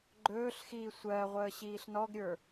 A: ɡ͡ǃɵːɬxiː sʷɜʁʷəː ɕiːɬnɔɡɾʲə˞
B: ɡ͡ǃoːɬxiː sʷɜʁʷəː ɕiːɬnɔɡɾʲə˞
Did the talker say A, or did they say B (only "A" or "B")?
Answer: A